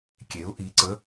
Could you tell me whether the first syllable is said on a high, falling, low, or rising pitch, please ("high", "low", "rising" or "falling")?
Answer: rising